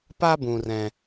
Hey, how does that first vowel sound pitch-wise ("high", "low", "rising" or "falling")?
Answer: high